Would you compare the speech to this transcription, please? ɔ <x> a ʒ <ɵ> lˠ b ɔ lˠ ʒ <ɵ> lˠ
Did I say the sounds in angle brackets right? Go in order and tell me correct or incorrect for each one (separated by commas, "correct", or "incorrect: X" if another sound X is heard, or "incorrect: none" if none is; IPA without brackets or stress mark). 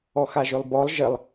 correct, correct, incorrect: ə